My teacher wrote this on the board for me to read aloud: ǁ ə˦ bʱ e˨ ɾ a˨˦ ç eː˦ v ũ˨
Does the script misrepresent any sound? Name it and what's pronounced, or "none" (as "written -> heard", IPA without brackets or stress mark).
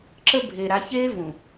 none